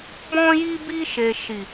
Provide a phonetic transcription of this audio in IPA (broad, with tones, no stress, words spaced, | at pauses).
bɔ̃˦ji˦bi˦ ʃe˧ ʃi˨